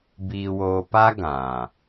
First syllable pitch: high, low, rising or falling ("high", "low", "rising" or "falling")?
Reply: low